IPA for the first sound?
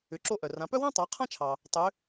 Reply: ʏ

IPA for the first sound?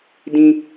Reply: d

